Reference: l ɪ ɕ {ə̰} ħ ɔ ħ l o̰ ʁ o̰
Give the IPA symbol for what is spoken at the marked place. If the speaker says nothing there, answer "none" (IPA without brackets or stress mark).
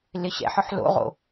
ɛ̰